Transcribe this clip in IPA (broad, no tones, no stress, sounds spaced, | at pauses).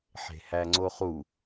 ħ e̤ h æ ŋ͡ǀ o χ u